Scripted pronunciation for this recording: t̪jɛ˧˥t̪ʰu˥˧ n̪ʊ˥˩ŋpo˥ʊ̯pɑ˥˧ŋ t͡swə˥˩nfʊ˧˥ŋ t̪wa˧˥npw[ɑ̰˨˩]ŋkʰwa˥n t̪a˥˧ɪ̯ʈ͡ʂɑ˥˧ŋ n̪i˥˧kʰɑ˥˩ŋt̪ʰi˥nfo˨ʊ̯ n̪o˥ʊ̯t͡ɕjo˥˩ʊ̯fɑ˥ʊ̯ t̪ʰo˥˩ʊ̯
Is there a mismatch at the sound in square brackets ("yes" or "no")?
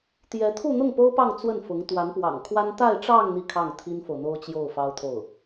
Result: no